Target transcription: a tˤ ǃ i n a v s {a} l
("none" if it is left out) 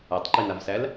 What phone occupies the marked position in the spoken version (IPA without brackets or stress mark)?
æ